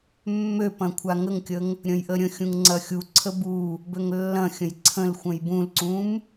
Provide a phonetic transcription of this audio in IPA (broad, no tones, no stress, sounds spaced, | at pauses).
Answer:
mː ø p ɐ̃ kʷʰ a ŋ ə ŋ kʲ ə ŋ | ɾʲ ə̃ j ʔ ə ɾʲ ə̃ xʲ ũ ŋ ŋ͡ǀ ɐ xʲ u ǀʰ ə b u | b ø ŋ lː ɐ̃ xʲ ə̃ j ǀʰ ə̃ l xʷ ə̃ j b ũ l ǀ ũ m